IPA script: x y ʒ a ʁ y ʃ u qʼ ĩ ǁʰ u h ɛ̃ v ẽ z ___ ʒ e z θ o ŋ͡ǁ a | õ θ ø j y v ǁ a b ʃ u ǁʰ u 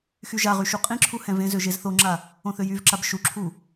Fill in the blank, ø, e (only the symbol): ø